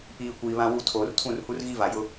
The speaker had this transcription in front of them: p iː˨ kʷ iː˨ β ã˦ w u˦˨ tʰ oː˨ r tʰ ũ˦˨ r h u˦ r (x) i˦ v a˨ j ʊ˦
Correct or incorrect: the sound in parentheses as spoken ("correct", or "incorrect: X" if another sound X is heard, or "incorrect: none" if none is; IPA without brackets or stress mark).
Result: incorrect: ɣ